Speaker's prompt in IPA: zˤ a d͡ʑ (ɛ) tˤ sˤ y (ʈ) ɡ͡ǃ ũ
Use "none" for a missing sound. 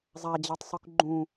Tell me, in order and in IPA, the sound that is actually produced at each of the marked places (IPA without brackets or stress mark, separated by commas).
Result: ɛ, k